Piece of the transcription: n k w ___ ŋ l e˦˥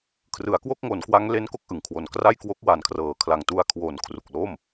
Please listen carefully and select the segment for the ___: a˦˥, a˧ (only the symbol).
a˦˥